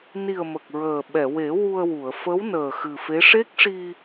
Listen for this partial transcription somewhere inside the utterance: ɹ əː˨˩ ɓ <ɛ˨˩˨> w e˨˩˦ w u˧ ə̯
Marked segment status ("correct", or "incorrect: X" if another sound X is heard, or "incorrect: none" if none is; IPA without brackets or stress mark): correct